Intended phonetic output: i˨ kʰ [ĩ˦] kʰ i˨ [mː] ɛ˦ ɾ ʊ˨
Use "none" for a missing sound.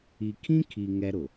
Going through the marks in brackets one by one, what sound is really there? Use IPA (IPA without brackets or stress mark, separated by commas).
ĩ˦, ŋ